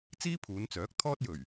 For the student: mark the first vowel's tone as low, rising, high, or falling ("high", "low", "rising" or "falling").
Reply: high